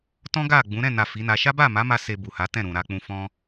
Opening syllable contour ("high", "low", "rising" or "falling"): high